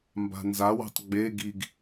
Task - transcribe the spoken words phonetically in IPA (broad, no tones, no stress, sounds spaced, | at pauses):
m b a̤ n z a w e̤ tˤ ɡ͡b e ɡ i ɡ